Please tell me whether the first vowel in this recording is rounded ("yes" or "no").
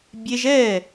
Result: no